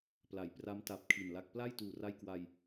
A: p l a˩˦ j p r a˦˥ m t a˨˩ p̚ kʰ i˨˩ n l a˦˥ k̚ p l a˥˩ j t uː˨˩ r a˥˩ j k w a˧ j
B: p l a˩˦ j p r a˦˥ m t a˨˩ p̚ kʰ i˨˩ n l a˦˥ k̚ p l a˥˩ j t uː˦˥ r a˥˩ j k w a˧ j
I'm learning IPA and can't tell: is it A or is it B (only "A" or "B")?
A